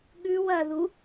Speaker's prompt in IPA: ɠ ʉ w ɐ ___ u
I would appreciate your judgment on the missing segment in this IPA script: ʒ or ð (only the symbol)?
ð